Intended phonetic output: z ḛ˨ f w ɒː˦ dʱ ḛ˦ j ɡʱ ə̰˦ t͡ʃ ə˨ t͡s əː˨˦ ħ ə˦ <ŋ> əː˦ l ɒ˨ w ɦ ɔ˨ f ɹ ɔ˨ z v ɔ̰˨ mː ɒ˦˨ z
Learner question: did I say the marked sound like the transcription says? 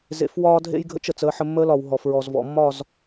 no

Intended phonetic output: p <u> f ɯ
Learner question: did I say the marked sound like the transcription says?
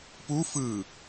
yes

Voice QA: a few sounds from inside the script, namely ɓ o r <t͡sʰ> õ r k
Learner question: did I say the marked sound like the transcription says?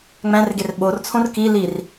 yes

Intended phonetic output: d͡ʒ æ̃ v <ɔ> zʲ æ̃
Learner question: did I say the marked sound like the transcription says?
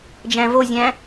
no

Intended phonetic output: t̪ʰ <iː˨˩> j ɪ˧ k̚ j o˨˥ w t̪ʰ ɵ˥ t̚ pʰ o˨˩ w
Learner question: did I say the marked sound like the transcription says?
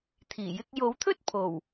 yes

